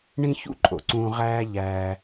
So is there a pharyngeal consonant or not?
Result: no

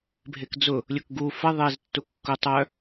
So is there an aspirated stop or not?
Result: no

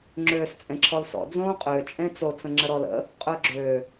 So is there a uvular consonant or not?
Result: yes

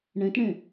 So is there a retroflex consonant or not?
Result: yes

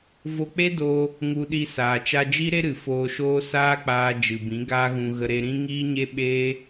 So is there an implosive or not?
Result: yes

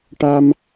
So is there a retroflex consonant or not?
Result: yes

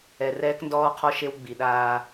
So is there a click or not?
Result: no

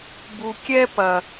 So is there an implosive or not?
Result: no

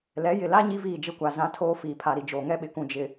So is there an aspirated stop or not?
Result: yes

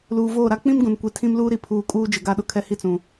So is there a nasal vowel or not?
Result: yes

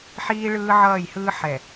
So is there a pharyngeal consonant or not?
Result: yes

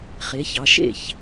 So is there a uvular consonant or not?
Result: yes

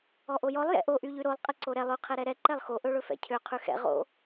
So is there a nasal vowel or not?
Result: no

